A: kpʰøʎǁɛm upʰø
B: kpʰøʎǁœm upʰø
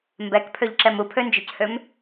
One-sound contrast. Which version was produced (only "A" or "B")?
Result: A